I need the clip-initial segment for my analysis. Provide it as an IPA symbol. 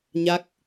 ɲ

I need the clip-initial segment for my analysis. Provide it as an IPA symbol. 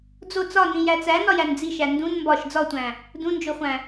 d͡z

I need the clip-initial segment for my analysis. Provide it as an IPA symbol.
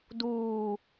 d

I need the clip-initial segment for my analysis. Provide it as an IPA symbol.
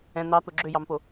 ɛ̃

